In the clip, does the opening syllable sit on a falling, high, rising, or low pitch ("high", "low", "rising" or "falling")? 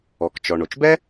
low